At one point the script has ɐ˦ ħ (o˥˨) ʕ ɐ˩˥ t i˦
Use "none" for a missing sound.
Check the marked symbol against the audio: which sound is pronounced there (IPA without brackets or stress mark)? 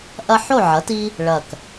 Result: o˥˨